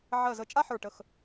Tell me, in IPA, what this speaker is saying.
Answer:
ʕ ɜ˧˩ z ə˧˩ t͡ʃʼ a˥ ħ ə˞˧˩ ʈ ə˧˩ x

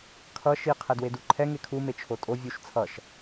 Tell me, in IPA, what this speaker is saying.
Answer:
kʰ ʌ ʃ i qʰ ɛ d w e d u ǃʰ ɛ ŋ e kʰ u m e t͡ʃʰ o tʼ o vʲ u ʃ t͡sʰ ʌ ʃ

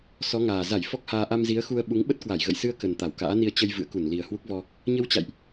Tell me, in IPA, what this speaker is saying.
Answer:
s ɔ˨˦ ŋ aː˨˩ z a˧˩ j f ɔ˦˥ k̚ h aː˧ ʔ a˧ m z i˨˦ ə̯ x u˧ ə̯ ɓ u˨˦ ŋ ɓ ə˦˥ t̚ k w a˧˩ j ɣ ə̰˧˨ j s ɨ˧ ə̯ k ə˨˩ n t̪ a˧˩ w k a̰ː˧˥ n i˧ ə̯ t͡ɕ ə˧ j v ɨ̰˧˨ ə̯ k u˧˩ n l i˨˩ ə̯ h w u˦˥ k̚ v ɔ˧ | ɲ ə˧ w t͡ɕ a̰˧˨ j ʔ

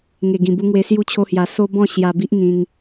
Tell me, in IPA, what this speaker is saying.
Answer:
ŋ e˨˩ ɡ ĩ˨˩ b u˧ ŋ w e˧ s j u˥˧ t͡ɕʰ o˦ h j a˧ s o˦ b ɔ̃˥˧ ɕ j a˧ b i˦ ʔ ŋ ĩ˧ ŋ

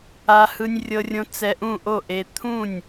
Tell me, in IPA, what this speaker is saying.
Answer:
a˧ h ɯ˧ nʲ rʲ ɤ˧ rʲ õ˧ t͡s ɛ˧ ʔ ũ˥˩ ʔ o˥˩ ʔ e˧ t̪ʰ ũ˥˩ nʲ

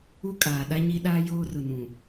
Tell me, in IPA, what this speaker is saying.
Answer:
u˦ kʼ aː˨ ɗ a˦ ɲ i˦ ɗ aː˦ j oː˦ r ʊ˨ n ũ˨

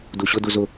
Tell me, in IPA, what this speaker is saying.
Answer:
d u ɕ ʊ d u z ʊ

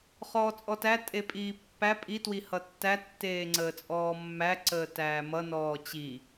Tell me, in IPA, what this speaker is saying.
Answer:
χ ɔː t͡sʼ ɔ t æ tʼ e pʼ iː pː æ pʼ i t w i h ʌ tː æ tː eː ŋ͡ǀ əː t͡sʼ ɔː mː æ ǀ əː t æː m ʌ n ɔː t͡ɕ i

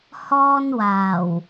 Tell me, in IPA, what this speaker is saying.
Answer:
h ɔː˥ n w aː˨˩ w

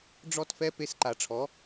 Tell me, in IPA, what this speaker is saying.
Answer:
ɖ͡ʐ ɔ˦ t f ɛ˦ p e˧ s ǃ a˨ ʈ͡ʂʰ ɔ˨˦

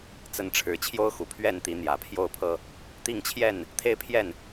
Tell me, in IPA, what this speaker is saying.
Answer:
t͡s ə˨˦ n ʈ͡ʂʰ ɻ̩˨˩ t͡ɕʰ j o˦ ʊ̯ x u˨˩ pʰ ɥ ɛ˥˨ n t̪ i˨˦ n̪ j ä˨˩ pʰ j o˥˨ ʊ̯ pʰ ɤ˦ | t̪ i˥˨ ŋ t͡ɕʰ j ɛ˥˨ n | t̪ʰ e˦ ɪ̯ pʰ j ɛ˥˨ n

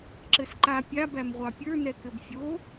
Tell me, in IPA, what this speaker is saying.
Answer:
ǁ ɘ s ǃ a pʲ a b æ m ʁʷ ɑ pʲ ə˞ n ɛ k ɘ b fʲ o

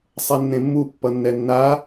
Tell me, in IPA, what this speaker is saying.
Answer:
sˤ ɛ nː ẽ mː u pː ʌ nː ɛ nː a

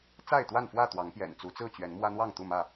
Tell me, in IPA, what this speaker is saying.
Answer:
t͡s a˥˨ ɪ̯ t̪ w a˥˨ n f w ä˥˨ t̪ w ɑ˨˦ ŋ p j ɛ̰˨˩ n t͡s u˨˦ t͡s ɹ̩˥˨ t͡ɕ ɥ ɛ˨˦ n m w ä˦ n̪ w ɑ˥˨ ŋ t̪ u˥˨ m ä˥˨

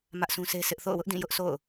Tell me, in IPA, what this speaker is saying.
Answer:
m ä˦ ʔ sʰ ũ˦ s e˦ s ɪ˦ ʔ θ o̰˦˨ ʊ̯ w ʊ˦ ʔ d ĩ˦˨ j ʊ˦ ʔ s o̰˦˨ ʊ̯

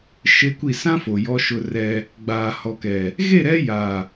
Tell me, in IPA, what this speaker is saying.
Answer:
ʃ e˦ kʷ i˦˨ s ã˦ f o˨ j ɔ˦ ʃ ʊ˦ r ɛ˦ | ɡ͡b aː˨ h ɔ˨ k ɛ˨ | ɣ e˦˨ ɾ ɛ˦ j a˨

